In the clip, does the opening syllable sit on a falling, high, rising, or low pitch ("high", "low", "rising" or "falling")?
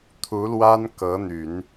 rising